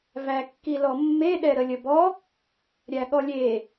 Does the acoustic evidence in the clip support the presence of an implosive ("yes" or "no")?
yes